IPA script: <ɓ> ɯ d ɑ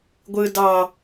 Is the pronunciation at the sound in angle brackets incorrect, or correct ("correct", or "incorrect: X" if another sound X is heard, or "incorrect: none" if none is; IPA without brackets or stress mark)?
incorrect: ɡʷ